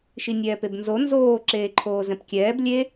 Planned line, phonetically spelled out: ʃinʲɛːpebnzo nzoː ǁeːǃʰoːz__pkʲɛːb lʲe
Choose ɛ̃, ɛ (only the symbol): ɛ̃